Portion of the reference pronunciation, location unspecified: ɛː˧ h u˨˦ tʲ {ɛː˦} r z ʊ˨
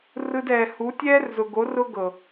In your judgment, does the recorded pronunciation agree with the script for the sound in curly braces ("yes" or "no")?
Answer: yes